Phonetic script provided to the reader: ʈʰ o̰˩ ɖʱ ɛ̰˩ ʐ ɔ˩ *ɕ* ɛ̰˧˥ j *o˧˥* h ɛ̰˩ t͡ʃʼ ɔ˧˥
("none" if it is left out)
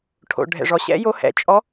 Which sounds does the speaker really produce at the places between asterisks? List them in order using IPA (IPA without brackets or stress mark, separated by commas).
ɕ, o˧˥